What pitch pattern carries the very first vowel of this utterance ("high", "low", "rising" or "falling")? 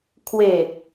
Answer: low